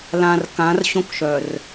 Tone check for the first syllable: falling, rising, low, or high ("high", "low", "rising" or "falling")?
low